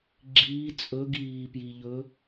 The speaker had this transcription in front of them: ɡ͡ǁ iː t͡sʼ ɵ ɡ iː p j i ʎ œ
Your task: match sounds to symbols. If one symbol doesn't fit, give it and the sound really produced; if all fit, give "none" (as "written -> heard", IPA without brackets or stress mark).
œ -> ɵ